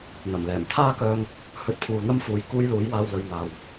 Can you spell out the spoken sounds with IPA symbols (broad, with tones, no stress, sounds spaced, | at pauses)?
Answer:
n̪ ɐ˨˩ m l ɛː˨˩ m t̪ʰ aː˥ k œː˧ ŋ | h ɵ˧ t̚ pʰ uː˨ n̪ ɐ˥ m f uː˨˧ j k uː˥ j l uː˨˥ j w aː˧ w l ɵ˨ ɥ n̪ aː˨ w